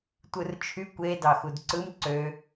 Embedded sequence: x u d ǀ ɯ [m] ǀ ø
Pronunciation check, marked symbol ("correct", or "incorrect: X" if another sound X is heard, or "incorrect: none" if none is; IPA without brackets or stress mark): correct